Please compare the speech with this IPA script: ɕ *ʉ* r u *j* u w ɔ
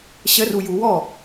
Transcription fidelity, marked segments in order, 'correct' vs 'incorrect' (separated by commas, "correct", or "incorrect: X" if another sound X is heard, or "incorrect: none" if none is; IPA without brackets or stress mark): incorrect: ə, correct